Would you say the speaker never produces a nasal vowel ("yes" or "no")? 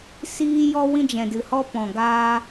no